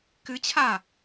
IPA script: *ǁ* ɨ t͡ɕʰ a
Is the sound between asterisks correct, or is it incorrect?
incorrect